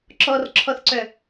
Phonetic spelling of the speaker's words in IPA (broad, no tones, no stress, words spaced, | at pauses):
ǁɔrǁʰɔθǀœ